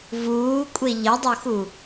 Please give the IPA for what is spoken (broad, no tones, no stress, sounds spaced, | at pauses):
v uː kʷʼ e ʎ ɐ dˤ o x u